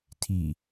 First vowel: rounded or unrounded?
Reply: unrounded